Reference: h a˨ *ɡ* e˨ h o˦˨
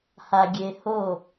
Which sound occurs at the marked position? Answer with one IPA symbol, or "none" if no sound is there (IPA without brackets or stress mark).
ɡʲ